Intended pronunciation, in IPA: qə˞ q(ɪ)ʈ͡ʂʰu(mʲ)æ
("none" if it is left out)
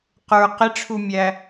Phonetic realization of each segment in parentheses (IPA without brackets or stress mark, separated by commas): ɪ, mʲ